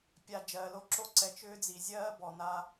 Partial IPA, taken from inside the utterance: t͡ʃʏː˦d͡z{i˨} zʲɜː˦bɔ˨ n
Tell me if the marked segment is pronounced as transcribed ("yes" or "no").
yes